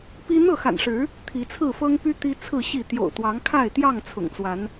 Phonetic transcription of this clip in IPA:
p i˦ n̪ ɤ˥˨ x a̰˨˩ n ʂ ɻ̩˨˦ | t̪ʰ i˨˦ t͡sʰ ɹ̩˥˨ f ɤ˦ ŋ p y˦ t̪ i˦ t͡sʰ ɹ̩˥˨ ɕ i˥˨ t̪ j o̰˨˩ ʊ̯ t̪ w ɑ˨˦ ŋ kʰ a˥˨ ɪ̯ t̪ j ɑ˥˨ ŋ t͡sʰ ʊ̰˨˩ ŋ t͡s w a˨˦ n

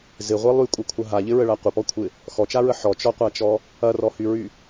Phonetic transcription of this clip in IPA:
z ɪ ʁʷ i lˠ y kʷʼ ɐ kʷʰ ɐ ɦ a ʎ ɪ ɹ ə ɭ a qʷ ə p ɔ kʷʰ ɪ | x ɔ t͡ʃ a ɹ ə ħ ɔ t͡ʃ ɔ qʷ a t͡ʃ ɔ | ɐ r ɔ h y ɹ y

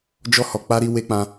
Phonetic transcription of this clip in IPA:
d͡ʒ ɔ˧ h ɔ˨ k͡p a˧ ɾ i˧ w e˧ k͡p ã˧

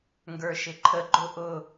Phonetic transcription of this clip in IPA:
ŋ ɡ ə˞ ʃ ɪ ǃʰ ə ɡ͡ǃ ʊ ʔ ʊ

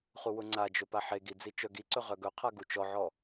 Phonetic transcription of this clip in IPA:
χ u w ʊ ŋ͡ǀ a d͡ʒ ɵ p a ħ e ɡ i d͡z i t͡ʃ œ ɡ i ǀ ɵ ʁ œ ɡ ɵ qʰ a ɡ u t͡ʃ ɔ ʕ ɔ

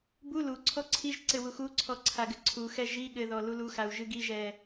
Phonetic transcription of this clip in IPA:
b u l u ǀʰ ɔ ǀʰ i ʒ ǀ ɘ w u x u ǀʰ ɔ ǀʰ a ɡ ɘ ǀʰ u x ɛ ʒ i ɠ ɘ ð ɔ l u l u x a u̯ ʒ ɨ ɡ i ʒ ɛ

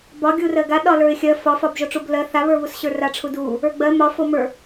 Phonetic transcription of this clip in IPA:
b ɒ ɡʲ u r ɜ ɡ a ɗ ɒ l ə˞ ɪ̯ xʲ ɜ f ɒ f ɒ b ʒ o ʈ͡ʂ u b l ɜ θ a β ə˞ β u s ɕ ə˞ r a ʈ͡ʂʰ u d u | ə˞ ɡ͡b ɜ m ɒ f o m ə˞

